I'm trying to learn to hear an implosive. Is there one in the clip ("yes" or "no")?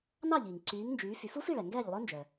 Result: no